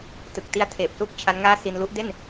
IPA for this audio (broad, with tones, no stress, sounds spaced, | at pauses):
t ɯ˨˩ k̚ t i˧ a̯ tʰ eː˨˩ p̚ s uː˥˩ k̚ t͡ɕʰ a˦˥ n ŋ aː˥˩ s i˧ n l u˦˥ ʔ d e˥˩ n